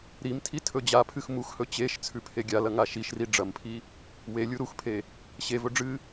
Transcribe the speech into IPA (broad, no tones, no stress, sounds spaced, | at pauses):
ɾ i m tʰ i tʰ ɵ d͡ʑ a pʰ ɨ x m u x h ɵ t͡ɕ e ʃ t͡sʰ ʉ pʰ e ɡʲ a l ɐ ŋ a ʃ i ʃ r i ɖ͡ʐ ɐ m pʰ i | w e lʲ u ɾ u x pʰ e | ɕ e v ɵ ɖ͡ʐ ɨ